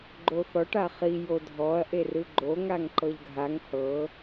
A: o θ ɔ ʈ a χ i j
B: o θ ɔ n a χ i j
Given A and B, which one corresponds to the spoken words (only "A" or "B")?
A